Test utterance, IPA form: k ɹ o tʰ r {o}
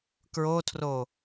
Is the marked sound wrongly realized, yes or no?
no